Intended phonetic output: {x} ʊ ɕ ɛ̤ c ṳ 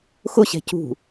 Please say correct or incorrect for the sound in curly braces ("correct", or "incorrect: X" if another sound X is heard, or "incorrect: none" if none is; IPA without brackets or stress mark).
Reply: correct